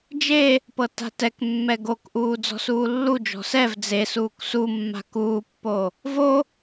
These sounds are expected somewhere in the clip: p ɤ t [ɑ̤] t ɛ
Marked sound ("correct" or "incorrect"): incorrect